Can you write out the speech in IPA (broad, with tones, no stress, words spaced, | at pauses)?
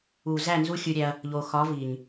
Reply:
u˨zæ˦˨ nzu˦xʲu˧ɾʲæ˧ɐ̯ | ʎo˨xɒ˨˦ vi˨ɲ